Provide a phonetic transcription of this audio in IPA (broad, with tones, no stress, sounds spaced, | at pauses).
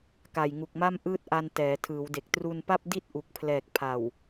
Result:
k a˨˩ j ŋ u˨˩ k̚ m a˥˩ m ʔ ɯː˥˩ t̚ ʔ a˧ n t ɛː˩˦ tʰ ɯː˩˦ w d e˨˩ k̚ t r u˧ n p a˥˩ p̚ d i˥˩ t̚ ʔ u˨˩ k̚ pʰ l ɛː˨˩ k̚ pʰ a˨˩ w